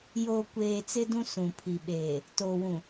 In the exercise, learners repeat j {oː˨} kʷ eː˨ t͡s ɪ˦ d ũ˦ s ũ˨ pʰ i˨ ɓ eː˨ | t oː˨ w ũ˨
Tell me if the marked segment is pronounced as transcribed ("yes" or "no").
yes